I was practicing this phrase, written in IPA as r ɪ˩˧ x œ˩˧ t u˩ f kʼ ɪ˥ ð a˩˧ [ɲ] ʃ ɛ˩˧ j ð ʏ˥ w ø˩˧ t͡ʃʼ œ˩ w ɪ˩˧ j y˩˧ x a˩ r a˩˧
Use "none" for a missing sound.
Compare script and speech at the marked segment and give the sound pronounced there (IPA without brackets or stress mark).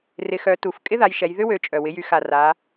j